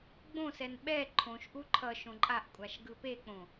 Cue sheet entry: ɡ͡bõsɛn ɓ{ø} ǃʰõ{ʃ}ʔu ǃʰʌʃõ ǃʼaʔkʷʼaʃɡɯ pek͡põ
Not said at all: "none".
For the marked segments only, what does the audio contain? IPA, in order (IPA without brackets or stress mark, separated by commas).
ɛ, ʃ